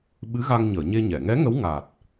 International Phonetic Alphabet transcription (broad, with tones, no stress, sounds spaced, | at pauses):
ɓ ɨ˧˥ ɣ a˧ ŋ ɲ əː˨˩˨ ɲ e˧ ɲ ɛ˨˩˨ ŋ ɛ˧˥ ŋ ə˧˥ w ŋ a˨˩ t̚